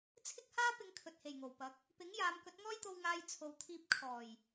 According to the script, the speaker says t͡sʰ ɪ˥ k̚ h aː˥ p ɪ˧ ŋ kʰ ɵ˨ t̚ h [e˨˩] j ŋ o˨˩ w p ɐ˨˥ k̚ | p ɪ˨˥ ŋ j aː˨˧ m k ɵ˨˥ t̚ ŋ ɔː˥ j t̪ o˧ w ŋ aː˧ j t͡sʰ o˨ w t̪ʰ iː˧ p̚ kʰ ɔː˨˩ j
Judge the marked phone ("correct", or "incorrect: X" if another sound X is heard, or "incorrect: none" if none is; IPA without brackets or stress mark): correct